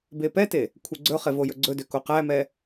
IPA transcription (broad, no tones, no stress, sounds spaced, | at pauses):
b e p ɛ t e | kʷʰ e ɡ͡ǀ ɵ χ e v o j ɵ ɡ͡ǀ ɵ d ø k o q æ m ɛ